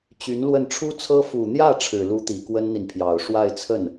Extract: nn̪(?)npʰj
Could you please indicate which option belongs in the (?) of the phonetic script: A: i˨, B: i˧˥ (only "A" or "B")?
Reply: A